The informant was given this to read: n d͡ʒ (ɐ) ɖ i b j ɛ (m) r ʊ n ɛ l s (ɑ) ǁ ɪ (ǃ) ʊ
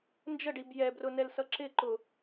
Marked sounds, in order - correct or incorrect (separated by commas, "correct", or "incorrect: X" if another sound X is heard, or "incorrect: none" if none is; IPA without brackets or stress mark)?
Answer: incorrect: ə, incorrect: b, incorrect: ʌ, correct